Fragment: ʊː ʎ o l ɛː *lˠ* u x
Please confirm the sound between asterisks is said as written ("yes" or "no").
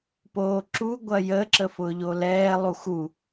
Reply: yes